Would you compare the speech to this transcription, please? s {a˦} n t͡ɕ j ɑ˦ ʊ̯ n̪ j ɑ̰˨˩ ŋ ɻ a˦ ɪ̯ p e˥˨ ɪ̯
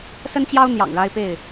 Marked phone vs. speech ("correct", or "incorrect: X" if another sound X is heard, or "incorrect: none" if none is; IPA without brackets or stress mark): incorrect: ə˦